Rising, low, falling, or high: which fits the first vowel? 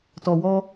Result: low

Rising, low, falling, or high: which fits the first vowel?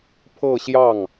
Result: falling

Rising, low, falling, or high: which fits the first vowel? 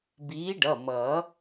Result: rising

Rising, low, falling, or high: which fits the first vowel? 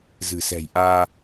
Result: low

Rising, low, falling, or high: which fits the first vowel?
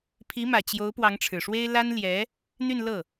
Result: rising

